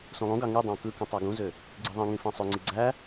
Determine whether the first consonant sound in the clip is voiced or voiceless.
voiceless